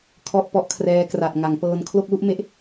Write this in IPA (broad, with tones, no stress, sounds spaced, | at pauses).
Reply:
kʰ ɔ˥˩ ʔ p ɔ˦˥ ʔ kʰ r ɛː˦˥ k r a˨˩ t̚ ŋ a˩˦ ŋ p ɤː˧ n kʰ l o˥˩ k̚ l u˥˩ ʔ m e˥˩ ʔ